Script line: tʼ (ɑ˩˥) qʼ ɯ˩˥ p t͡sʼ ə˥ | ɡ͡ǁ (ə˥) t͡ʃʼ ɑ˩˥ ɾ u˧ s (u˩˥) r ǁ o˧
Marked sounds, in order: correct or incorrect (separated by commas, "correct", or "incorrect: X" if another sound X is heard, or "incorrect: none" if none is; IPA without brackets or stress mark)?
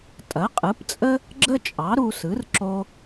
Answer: incorrect: ɐ˩˥, correct, incorrect: ɯ˩˥